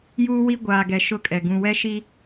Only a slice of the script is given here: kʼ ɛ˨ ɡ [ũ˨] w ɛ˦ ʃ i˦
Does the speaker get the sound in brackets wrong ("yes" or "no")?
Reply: no